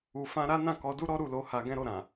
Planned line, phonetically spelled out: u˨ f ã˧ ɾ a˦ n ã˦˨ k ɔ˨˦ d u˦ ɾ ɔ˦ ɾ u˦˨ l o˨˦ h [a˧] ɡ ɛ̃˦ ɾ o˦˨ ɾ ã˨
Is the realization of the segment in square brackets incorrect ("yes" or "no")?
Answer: no